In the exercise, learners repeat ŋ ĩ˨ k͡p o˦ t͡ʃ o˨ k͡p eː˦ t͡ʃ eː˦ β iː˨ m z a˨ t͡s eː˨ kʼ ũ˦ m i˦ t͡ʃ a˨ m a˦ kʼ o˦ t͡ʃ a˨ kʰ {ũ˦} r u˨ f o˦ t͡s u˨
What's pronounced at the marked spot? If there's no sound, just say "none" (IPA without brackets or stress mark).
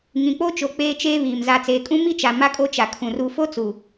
ũ˨